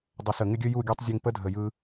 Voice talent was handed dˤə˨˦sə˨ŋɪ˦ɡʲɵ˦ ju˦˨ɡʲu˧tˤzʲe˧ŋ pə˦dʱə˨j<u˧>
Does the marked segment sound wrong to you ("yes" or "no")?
yes